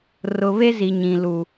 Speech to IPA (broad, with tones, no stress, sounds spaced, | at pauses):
r ʊ˨ β e˦ z i˨ ɲ ĩ˨ l u˨